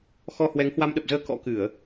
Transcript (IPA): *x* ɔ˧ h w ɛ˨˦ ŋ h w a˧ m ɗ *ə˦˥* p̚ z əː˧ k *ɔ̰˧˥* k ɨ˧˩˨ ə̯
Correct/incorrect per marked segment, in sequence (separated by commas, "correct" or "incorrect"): correct, incorrect, correct